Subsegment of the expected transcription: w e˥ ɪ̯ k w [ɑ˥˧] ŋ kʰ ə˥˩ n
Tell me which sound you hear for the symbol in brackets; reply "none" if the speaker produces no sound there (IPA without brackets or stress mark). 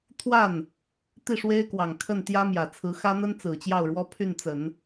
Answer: ɑ˨˩